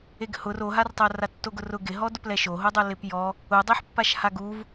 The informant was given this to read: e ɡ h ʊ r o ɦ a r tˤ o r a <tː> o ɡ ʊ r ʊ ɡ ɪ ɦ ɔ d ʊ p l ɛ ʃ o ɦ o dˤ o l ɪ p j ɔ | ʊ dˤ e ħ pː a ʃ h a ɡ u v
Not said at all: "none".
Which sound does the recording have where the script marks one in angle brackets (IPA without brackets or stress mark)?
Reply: tː